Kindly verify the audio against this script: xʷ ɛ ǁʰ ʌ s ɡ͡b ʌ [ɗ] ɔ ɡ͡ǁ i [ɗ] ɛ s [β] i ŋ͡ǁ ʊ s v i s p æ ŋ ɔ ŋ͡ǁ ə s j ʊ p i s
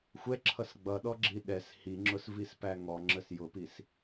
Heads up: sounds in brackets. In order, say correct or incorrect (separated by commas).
correct, correct, incorrect